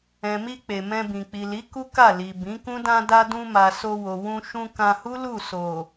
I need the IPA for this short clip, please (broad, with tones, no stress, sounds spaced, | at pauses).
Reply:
ɛ̃˨ m i˧ k͡p e˨ m ɛ̃˧ b ĩ˨ k͡p i˨ l i˨˦ k u˦ k a˦˨ l i˨ b ĩ˨˦ k ũ˦ d ã˧ d a˧ d ũ˧ m a˨ s o˧ w o˨ w ũ˧ ʃ ũ˧ k ã˧ h u˦ l u˦˨ s o˨